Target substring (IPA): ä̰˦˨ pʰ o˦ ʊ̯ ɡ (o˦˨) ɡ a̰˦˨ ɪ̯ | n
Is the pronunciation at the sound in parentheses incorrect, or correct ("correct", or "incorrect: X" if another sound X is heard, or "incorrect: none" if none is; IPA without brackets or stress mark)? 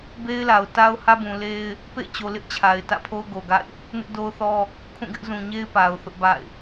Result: incorrect: o˨